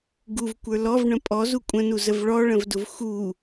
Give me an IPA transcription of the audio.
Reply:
ɡ u v kʷ ə˞ l ɔ v ɳ ə̃ pʼ ɔ z u kʷʼ ə̃ n u z ə v ɭ ɔ ɭ ə̃ v d ʊ v x u

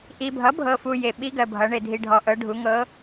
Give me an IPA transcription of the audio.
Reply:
ʔ i˨ bʱ ʌ˩˥ bʱ ɤ˨ f u˨ j e˨ ɓ i˧˥ ɡ ɜ˨ bʱ ʌ˩˥ ɳ e˨ dʱ i˨ ɖʱ ɔ˨ ʔ ɤ˩˥ ɖʱ u˩˥ ŋ ɤ˧˥

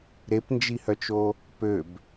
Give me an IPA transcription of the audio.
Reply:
ɾ e p n d͡ʒ i h œ t͡ʃ o | p ø b

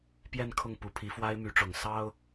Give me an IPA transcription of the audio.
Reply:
p j ɛ˥˧ n kʰ ʊ˥˩ ŋ p u˧˥ pʰ i˧˥ f w a˥ ɪ̯ m y˧˥ ʈ͡ʂ ʊ˨˩ ŋ s ɑ˥ ʊ̯

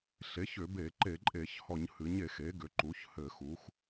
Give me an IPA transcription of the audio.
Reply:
ɬ e˩˥ ç ʏ˧˩˧ b e˧˩˧ ǃ e˧˩˧ ǃʼ e˧˩˧ ç h ɔ˧˩˧ ɲ h ɨ˩˥ ɲ e˧˩˧ x e˩˥ ɡ ʏ˩˥ ǃ u˩˥ ç h ɘ˧˩˧ x u˩˥ x

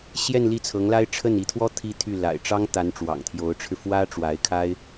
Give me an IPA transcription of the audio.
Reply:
ɕ j ɛ˥˧ n l i˥˩ t͡sʰ ɤ˧˥ ŋ l a˥ ɪ̯ ʈ͡ʂʰ ə˥˩ n i˧˥ t̪ʰ w ɔ˥ t̪ʰ i˥ t̪ʰ y˥˩ l a̰˨˩ ɪ̯ ʈ͡ʂ ɑ˥ ŋ t̪ a˧˥ n ʈ͡ʂ w ɑ̰˨˩ ŋ t̪ʰ j o˧˥ ʊ̯ ʈ͡ʂʰ ɻ̩˧ f w ä˥ ʈ͡ʂ w a˧˥ ɪ̯ kʰ a˥ ɪ̯

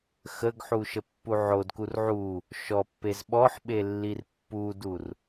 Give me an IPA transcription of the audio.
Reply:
x ə ɡ ħ u ʃ ə pː u ʕ o d k u r ʕ u | ʃ ɔ pː e z ɓ ɔ ħ ɓ e lː i r pː u d u r

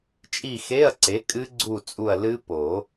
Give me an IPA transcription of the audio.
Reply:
t͡ʃʼ i˦˨ x e˧˥˧ ɐ̯ ǀ e˩˥ kʼ ɨ˦˥ ɡ͡ǀ u˦˨ t͡sʼ u˦˨ ɐ̯ l ɨ˦˥ p o˨˩˦

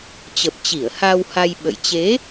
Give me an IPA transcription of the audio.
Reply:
t͡ɕ ə˨˩ p̚ t͡ɕ i˧˩ ə̯ h aː˧ w h a˧ j ɓ ə̰˧˨ j t͡ɕ e˨˦

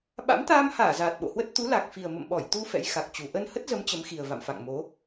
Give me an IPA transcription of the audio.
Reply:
ɓ a̰˧˥ m t̪ aː˧ m h aː˧˩ z aː˨˩ t̚ ɓ o̰˧˨ h w ə˦˥ t̚ t̪ u˨˦ l a˨˩ k̚ f i˨˩ ə̯ m ə̰˧˨ m ɓ ɔ˧˩ j t̪ u˧ f ɛ̰˧˥ j x a˨˩ k̚ t͡ɕ u˨˩ ʔ ə˧ n h ə˦˥ t̚ z ə˨˦ m t͡ɕ ə˨˦ m x i˨˩ ə̯ v a̰˧˨ m f a̰˧˨ ŋ m o˨˦

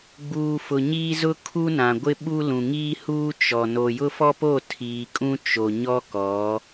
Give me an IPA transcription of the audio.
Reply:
ɡ͡b uː˨ f ʊ˨ ɲ iː˦ z ʊ˦ kʰ u˦ n ã˨ ɡʷ ɪ˦ ɓ u˦ l ũ˨ ŋ iː˦ h uː˦ t͡ʃ ɔ˨ n o˨ j ʊ˦ f ɔ˦ p o˦˨ tʰ iː˨ kʼ ũ˦ t͡ʃ o˨ ɲ ɔ˦ k ɔ˨˦

